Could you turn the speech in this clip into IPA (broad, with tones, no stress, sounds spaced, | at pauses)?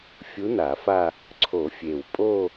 fʲ u˧˥ n a˨˩˦ f a˥˧ | ǀʰ o˨˩˦ fʲ e˨˩ w pʼ o˥˧